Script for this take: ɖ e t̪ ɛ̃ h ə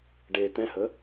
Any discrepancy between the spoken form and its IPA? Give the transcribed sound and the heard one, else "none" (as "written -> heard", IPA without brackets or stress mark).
none